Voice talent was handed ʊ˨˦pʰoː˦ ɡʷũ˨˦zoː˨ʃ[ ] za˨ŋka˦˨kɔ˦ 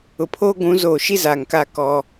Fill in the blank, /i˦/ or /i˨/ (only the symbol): i˦